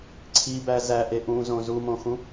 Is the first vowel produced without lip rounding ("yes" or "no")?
yes